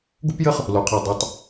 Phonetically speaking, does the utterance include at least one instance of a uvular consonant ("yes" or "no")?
yes